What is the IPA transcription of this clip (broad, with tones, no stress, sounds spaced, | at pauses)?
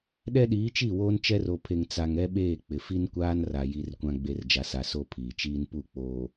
ɗ ɛ˦ ɗ iː˨˦ t͡ʃ i˦˨ w oː˦ n t͡ʃ ɛ˦ r o˨ pʰ e˨ ŋ t͡s a˨ ŋ ɛ˦ ɓ eː˦˨ k͡p ɪ˨ f i˦ n kʷ aː˦ n r a˨ j i˨ r kʷ ã˨ ɡ͡b e˨ r d͡ʒ a˨ s a˨ s o˦ pʰ iː˨ t͡ʃ iː˦ n p u˦˨ k͡p oː˨